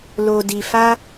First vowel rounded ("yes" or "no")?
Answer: yes